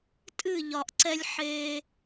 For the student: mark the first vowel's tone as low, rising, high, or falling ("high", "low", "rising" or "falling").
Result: falling